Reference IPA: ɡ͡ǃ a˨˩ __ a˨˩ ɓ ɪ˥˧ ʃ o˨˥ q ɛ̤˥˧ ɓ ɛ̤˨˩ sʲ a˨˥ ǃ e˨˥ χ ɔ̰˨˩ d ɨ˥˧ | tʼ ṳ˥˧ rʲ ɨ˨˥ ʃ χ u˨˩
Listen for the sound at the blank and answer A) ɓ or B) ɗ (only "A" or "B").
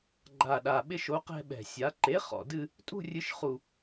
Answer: B